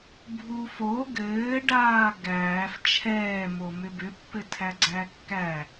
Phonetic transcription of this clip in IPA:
bʱ u f o ɡ ɘː ɖ aː ɡ æː f t͡ʃʰ ɛː m o m ʏ b ʏ pː ɘ tʰ æ ɡ͡ǀ æ kː æ

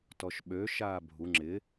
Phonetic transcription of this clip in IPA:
t ɔ ʃ ɓ ø ʃ aː bʱ u ŋ͡ǁ ɪ

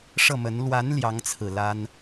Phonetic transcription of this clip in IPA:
ʂ ɤ˥˩ m ə˧˥ n l w a˧˥ n l j ɑ˧˥ ŋ t͡sʰ ɹ̩˨˩ l a˥ n

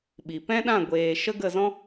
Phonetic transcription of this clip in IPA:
ɓ i˨ p ɛ̃˦ ɗ ã˦˨ ɡʷ eː˨ ʃ ə˦ ɡ ə˦˨ z ɔ̃˦

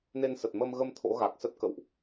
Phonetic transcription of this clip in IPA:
n e˧ n s ə˨˩ t̚ m ə˧ m ɣ ə˧ m t̪ʰ o̰˧˥ ɣ a˨˩ k̚ s ə˦˥ t̚ k ə̰˧˨ w ʔ

